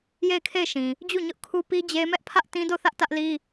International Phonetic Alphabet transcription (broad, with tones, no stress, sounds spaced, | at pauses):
j e˦˨ ɪ̯ kʰ e˦˨ ɪ̯ ʃ ĩ˨ | d͡ʑ u˦˨ ɲ ʊ˦ ʔ kʰ u˦ p i˦ d͡ʑ e˦ m ɛ˦ ʔ pʰ ä˦ ʔ t ĩ˦ d o˦˨ θ ä˦ ʔ t ä˦ ʔ l i˦